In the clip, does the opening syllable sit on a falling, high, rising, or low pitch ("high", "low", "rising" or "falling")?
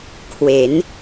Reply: rising